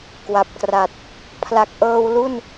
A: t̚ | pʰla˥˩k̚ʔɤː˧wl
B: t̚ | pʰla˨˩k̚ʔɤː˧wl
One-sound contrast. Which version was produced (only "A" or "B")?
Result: B